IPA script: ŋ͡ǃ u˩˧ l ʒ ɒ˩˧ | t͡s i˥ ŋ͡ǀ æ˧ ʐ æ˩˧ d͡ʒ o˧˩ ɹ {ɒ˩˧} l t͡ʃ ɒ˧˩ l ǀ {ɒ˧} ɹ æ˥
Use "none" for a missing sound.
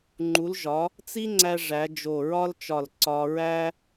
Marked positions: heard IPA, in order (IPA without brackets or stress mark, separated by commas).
ɒ˥, ɒ˧